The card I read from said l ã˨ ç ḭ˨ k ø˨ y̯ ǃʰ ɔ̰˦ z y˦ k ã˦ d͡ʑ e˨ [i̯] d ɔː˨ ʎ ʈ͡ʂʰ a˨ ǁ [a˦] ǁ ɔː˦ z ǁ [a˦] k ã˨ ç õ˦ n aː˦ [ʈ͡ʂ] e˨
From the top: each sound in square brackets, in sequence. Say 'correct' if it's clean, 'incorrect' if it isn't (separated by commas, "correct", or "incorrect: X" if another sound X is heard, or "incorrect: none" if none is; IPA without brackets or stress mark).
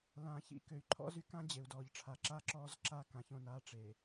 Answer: incorrect: u̯, incorrect: aː˦, correct, correct